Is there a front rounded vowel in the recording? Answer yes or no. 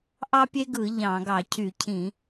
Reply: yes